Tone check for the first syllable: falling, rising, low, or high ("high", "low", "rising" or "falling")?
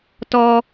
high